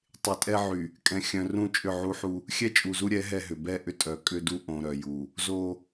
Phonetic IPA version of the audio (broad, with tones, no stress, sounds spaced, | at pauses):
tˤ ɪ˨ tʼ ɛ˦ ʕ y˨ | kʼ ɛ̃˨ xʲ œ̃˨ r ũ˦˨ t͡ʃʼ ʏ˦˨ ʕ u˦ ħ u˦ | xʲ ɛ˦ t͡ʃʼ u˨ z u˦ ɾʲ ɛ˨˦ ɦ ɛ˦ ɦ ʏ˨ b ɛ˦˨ ʔ ʏ˦ tʼ œ˨ kʼ ʏ˦ d u˦ ʔ õ˨ ɾ œ˨ j u˨ | z o˦